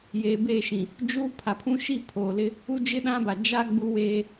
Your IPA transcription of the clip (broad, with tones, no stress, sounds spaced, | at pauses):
j eː˨ b eː˦˨ ʃ ĩ˨ | d͡ʒ uː˦ pʰ a˨ pʰ ũ˦ ʃ i˦˨ pʰ oː˨ l ɪ˦ | u˦ d͡ʒ ɪ˦ ɗ ã˦ b a˨ d͡ʒ a˦ ɡ͡b u˦ w eː˦